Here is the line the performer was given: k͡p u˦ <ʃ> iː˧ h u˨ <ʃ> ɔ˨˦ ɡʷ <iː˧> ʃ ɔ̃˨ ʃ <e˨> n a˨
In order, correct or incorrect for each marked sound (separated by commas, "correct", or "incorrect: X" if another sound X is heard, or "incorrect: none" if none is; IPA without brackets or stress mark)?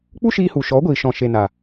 correct, correct, incorrect: iː˨, correct